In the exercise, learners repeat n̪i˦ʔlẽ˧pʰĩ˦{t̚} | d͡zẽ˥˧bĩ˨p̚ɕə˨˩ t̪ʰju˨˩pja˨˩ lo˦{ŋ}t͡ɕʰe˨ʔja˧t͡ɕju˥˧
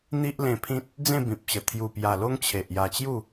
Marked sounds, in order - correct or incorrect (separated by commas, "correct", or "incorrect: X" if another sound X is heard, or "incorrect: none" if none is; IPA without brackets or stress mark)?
correct, correct